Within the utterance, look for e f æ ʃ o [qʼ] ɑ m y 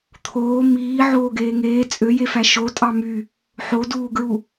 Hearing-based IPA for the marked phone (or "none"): tʼ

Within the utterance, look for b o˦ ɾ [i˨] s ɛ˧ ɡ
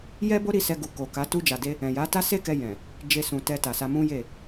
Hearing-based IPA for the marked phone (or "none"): i˦˨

